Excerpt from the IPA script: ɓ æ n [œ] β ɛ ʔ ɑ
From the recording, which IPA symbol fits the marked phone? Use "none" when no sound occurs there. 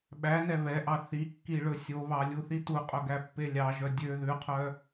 ɛ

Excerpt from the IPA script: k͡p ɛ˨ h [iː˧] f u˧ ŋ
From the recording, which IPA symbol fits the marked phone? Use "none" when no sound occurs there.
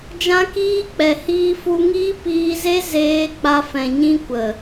iː˧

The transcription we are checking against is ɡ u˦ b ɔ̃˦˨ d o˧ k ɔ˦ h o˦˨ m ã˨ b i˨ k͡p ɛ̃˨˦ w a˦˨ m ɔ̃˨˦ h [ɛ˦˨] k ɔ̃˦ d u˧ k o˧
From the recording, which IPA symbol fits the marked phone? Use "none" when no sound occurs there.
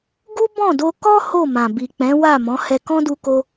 ɛ˧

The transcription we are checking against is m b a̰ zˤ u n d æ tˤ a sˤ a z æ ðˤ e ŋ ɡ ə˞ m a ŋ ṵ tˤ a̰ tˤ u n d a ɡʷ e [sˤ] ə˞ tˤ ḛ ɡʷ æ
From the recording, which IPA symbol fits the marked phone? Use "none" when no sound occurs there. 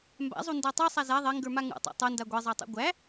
zˤ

